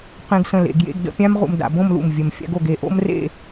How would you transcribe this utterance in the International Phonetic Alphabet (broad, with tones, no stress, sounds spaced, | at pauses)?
q ẽ˧ ɡ s ə̃˧˩ l ḛ˩˧ ɡ j ḛ˥˧ ɡ d ə̰˥˧ pʲ ã˥ m ʁ ṵ˧ m d a̰˩˧ b õ˥˧ m l ṵ˧˩ m vʲ ə˧˩ m fʲ a̰˥ ɡ o˧ ɡ e˧˩ ʔ o̰˥ m r ḛ˥˧